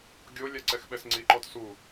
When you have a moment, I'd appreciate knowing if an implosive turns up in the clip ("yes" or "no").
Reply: yes